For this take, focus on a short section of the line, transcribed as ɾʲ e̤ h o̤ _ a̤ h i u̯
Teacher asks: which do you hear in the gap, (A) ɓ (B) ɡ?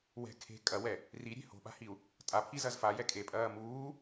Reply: A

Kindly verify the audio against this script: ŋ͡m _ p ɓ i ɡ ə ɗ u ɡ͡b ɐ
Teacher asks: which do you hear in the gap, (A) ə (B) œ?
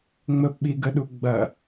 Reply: A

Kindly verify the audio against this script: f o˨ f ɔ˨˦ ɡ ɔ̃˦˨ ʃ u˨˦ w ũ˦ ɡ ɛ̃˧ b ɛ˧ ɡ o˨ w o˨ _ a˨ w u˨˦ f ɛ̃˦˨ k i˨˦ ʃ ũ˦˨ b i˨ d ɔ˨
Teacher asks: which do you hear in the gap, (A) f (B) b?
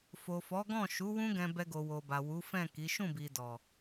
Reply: B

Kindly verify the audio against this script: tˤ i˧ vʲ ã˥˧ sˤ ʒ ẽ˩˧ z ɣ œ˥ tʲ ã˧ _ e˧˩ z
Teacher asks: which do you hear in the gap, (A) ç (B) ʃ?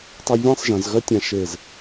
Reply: B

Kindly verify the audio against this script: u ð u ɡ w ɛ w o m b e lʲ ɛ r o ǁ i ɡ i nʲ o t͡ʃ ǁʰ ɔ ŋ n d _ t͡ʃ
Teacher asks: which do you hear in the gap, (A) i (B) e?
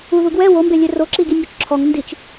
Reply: A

